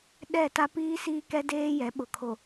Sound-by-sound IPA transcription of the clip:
ɗ ɛ˦˨ t a˦ p iː˦ s iː˦ k ɛ˦ d eː˦ j ɛ˨˦ ɓ ʊ˨ kʰ o˨

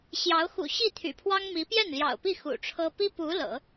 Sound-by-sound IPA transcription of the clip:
ɕ j ɑ˧˥ ʊ̯ x ṵ˨˩ ɕ i˥˩ t̪ʰ y̰˨˩ pʰ w ɑ˥ ŋ m i˧˥ p j ɛ˥˩ n l j ɑ̰˨˩ ʊ̯ p i˥˩ x ṵ˨˩ ʈ͡ʂʰ ɤ˥ p i˥ p u˧˥ l ɤ̰˨˩˦

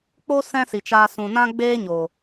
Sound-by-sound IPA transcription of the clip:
k͡p o˦ s ɛ̃˦ s i˨ t͡ʃ aː˧ s ũ˨ n ã˦ ɡ͡b eː˦ ɲ o˨

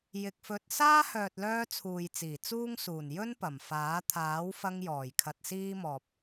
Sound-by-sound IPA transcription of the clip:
j ɪ˨ k̚ f ɵ˧ t̚ s aː˥ h œː˨ t̚ l œː˧ t͡sʰ uː˨ j t͡s iː˨˩ t͡s uː˥ ŋ s uː˨˩ n j ɵ˥ n p ɐ˨˩ m f aː˨˥ t̪ʰ aː˨˥ w f ɐ˧ ŋ j ɔː˨˩ j kʰ ɐ˧ t̚ s iː˥ m ɔː˨ p̚

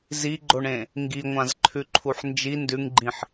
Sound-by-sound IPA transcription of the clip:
z i ɡ͡ǃ o ɳ ẽ | ŋ ɡ i ŋʷ ã z ǃʰ ʉ ǃʰ u ħ n d͡ʒ i n d ʉ ŋ ɡ͡ǃ ĩ ħ

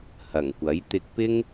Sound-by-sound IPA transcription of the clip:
h ɐ˨˩ ŋ kʷ ɐ˨˥ j t̪ ɪ˧ k̚ p ɪ˥ ŋ

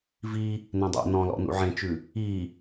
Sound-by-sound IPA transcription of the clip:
v i | n ẽ dˤ æ̰ n ɔ̃ l ɔ̰ n ṵ ʕ ẽ t͡ʃ ʉ | i

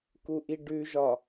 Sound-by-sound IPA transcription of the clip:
k u ʔ i ɖ ʉ ʒ ɒ

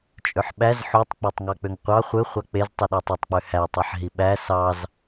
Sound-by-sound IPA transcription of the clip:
t͡ʃʼ ø ħ ɓ æ z ħ u tˤ k͡p ɑ tˤ ŋ ɑ k͡p ø ŋ qʷ ɑ χʷ ɯ χʷ ɑ k͡p e z tˤ i ɗ e tˤ ø tˤ k͡p ø h æ tˤ e ħ ɦ i ɓ æ s ɑ z

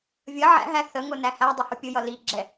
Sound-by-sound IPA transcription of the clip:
vʲ ʌ ʕ æ̰ ɦ æ θ ə ŋ ʊ n æ h æ dˤ ə h ʊ pʲ ʊ j ʌ l i ɡ͡ǁ ɛ

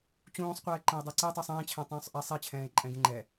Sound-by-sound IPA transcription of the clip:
t͡ɕ ũː sˤ qʷ ɛː ǃ ɛ̃ e̯ dˤ ɛ ǀ ɛ tˤ u sˤ ẽː t͡ɕʰ ɛ̃ tˤ ũː sˤ ʔ ɛ sˤ e t͡ɕʰ ɛ̃ː e̯ ǃʼ ɛ̃ ɡ ẽ ŋ͡ǃ ɛ

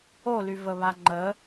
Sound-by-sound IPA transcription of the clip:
o l y v ə β a ŋ͡ǃ ə

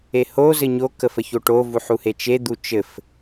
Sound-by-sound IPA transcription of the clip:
e h o z ɘ ɲ o k ə f ə ç o ʈ o v u ħ u h e t͡ʃ e d̪ u t͡ʃ ɘ f

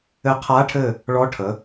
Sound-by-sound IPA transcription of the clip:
ɘ˧˥ qʰ a˧˥ ʈʰ ɘ˦˨ | ɭ ɔ˧˥ ʈʰ ə˩˧

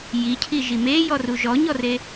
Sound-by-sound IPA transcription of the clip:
j i cʰ i ʒ i m e j ɔ r u ʒ ɔ ɲ ɔ r e

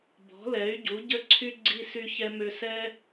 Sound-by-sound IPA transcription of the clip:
b ɔ̤˨˦ l ɛ˨˦ y̯ ɟ u˨˦ ɟ ə˦ ǀʰ y˦ ɡ͡ǀ i˧ s y˧ ç ɛ˧ m ø˧ s ɛ˦

